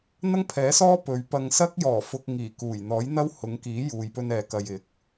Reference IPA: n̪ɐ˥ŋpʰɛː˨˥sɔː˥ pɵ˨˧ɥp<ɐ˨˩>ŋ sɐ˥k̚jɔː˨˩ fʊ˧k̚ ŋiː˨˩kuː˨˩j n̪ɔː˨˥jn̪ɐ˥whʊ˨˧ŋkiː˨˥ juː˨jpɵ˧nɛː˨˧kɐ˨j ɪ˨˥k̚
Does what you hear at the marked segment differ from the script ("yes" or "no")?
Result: yes